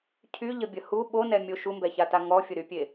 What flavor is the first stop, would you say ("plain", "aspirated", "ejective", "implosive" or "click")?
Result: aspirated